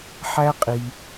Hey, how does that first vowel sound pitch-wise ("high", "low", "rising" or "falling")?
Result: high